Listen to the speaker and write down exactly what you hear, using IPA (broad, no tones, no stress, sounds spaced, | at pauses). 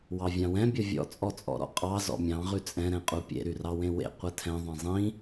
w ɑ vʲ ɑ̃ w ɛ̃ bʲ ʌ vʲ ɔ̰ t͡sʼ ɔ t͡sʼ ɔ̰ ɾ ɔ̰ qʼ ɑ z ɔ̰ mʲ ɑ̃ ʁ ʉ t͡sʼ ɛ̃ ɾ ɛ̃ qʼ u pʲ ḛ ɾ y r ɑ w ẽ w ḛ qʷ ɛ tʰ ɛ̃ ðˤ ɛ̃ zˤ ĩ